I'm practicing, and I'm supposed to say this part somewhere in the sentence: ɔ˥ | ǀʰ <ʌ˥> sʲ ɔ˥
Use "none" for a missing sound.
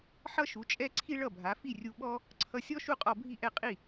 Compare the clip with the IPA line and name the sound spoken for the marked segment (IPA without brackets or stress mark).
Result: ʌ˧